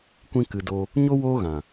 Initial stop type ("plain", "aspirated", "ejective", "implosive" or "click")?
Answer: plain